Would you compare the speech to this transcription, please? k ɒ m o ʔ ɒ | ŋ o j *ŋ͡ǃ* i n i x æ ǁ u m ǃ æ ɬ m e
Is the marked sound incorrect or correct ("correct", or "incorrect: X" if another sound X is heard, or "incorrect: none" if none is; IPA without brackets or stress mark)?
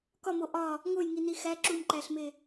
incorrect: ŋ